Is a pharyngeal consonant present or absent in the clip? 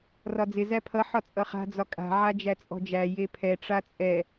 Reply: present